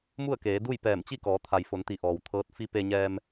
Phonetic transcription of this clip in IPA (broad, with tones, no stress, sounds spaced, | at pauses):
m u˥˨ ə̯ k eː˩˧ d u˥˨ j p ɛː˧˩ m t͡ɕ i˥˨ k ɔː˩˧ t̪ʰ a˩ j f o˩˧ n t̪ i˩˧ ʔ ɔː˩ w t̪ʰ ɤː˧˥ t̚ f i˧˥ p e˧ ɲ ɛː˧ m